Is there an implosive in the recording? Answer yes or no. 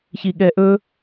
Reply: yes